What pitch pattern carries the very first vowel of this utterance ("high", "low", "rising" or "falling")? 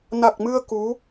low